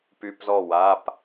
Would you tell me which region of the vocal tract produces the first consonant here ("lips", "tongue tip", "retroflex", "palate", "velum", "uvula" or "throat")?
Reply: lips